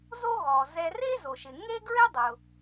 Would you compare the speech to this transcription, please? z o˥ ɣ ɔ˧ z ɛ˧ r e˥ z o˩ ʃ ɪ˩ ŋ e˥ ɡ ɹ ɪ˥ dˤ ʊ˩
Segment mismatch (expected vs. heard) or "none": ɔ˧ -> ɔ˩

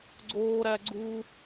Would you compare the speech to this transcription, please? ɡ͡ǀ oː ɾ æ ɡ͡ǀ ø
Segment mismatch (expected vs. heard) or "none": ø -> u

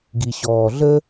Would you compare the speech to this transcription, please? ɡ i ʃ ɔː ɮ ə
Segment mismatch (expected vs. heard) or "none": ʃ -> ɕ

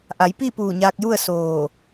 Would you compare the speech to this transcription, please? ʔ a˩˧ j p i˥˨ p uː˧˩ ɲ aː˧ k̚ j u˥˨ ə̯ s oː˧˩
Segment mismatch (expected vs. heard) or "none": none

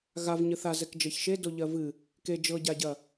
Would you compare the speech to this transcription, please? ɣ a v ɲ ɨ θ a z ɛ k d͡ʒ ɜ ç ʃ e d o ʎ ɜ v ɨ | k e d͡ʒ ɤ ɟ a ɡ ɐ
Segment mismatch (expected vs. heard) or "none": ɡ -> ɟ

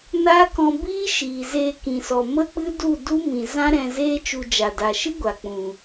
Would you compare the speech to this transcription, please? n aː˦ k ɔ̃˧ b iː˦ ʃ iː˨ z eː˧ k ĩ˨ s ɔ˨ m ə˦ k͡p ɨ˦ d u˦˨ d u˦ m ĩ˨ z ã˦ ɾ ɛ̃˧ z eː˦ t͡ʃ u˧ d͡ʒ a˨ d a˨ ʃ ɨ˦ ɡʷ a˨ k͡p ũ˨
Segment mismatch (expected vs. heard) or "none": none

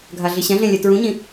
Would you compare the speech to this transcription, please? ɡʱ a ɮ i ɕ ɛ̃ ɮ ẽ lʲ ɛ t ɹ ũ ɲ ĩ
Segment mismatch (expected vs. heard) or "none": none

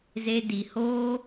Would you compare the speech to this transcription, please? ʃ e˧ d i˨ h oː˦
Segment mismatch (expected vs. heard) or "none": ʃ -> z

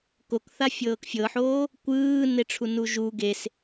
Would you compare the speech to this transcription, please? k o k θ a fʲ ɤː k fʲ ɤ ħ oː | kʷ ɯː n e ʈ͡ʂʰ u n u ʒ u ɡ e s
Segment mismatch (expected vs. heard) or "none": none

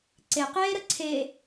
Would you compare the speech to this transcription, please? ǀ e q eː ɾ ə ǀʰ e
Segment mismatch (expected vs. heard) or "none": none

